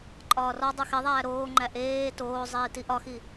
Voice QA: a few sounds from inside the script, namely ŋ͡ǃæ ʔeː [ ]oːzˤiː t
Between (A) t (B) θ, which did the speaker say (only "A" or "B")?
A